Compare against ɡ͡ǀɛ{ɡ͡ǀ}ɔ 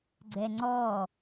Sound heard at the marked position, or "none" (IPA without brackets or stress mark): ŋ͡ǀ